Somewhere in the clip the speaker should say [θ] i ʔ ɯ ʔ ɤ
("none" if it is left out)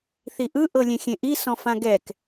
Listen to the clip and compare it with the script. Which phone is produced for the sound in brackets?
θ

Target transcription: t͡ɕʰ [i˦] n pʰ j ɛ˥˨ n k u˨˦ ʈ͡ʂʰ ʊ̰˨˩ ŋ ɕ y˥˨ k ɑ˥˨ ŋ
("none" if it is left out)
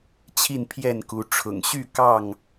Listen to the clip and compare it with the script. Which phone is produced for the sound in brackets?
i˥˨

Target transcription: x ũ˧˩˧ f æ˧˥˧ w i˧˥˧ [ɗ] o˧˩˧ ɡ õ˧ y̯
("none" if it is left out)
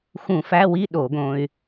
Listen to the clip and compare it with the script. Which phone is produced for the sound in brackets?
ɗ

